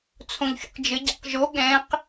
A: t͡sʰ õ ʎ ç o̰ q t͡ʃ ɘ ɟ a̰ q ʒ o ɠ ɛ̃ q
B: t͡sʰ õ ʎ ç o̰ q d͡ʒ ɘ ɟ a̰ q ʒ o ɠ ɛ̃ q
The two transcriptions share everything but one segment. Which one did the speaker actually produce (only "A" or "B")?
B